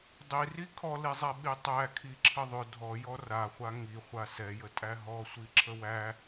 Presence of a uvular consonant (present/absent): present